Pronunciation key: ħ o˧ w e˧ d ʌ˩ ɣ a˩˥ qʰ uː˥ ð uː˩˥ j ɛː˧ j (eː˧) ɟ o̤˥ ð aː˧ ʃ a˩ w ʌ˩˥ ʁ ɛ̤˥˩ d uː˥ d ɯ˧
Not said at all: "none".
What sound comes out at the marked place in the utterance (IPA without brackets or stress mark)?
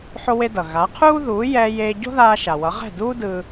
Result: eː˧